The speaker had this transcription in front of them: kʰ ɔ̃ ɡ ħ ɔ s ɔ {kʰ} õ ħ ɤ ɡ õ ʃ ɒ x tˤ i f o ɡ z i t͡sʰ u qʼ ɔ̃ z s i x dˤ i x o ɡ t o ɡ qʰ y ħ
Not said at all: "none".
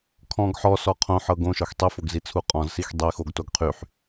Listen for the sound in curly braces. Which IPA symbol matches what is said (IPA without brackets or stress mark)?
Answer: qʰ